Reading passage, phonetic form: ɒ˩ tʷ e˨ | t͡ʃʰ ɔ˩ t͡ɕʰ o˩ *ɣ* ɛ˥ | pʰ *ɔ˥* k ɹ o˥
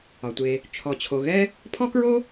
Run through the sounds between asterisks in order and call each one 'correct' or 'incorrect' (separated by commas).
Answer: correct, correct